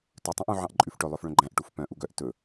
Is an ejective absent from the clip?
no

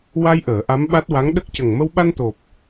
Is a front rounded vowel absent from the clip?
yes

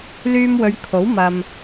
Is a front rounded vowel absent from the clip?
no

